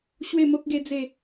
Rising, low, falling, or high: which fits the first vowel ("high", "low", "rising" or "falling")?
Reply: falling